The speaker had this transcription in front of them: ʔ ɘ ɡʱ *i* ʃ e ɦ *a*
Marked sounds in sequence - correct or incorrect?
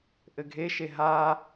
incorrect, correct

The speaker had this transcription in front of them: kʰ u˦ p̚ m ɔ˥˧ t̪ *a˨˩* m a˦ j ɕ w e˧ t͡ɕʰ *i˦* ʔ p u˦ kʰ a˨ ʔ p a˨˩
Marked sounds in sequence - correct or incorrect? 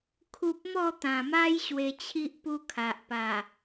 incorrect, correct

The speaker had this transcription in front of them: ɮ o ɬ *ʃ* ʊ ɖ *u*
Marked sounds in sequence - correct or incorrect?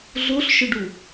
correct, correct

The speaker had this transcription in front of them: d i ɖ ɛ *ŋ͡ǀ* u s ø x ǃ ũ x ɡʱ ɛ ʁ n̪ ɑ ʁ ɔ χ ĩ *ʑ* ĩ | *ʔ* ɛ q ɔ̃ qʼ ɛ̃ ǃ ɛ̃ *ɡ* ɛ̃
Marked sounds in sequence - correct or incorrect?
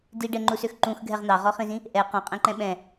incorrect, incorrect, correct, incorrect

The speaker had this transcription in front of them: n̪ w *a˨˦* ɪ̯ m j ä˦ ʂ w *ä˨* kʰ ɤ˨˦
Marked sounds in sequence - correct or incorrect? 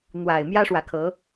incorrect, correct

